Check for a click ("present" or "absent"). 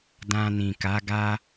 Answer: absent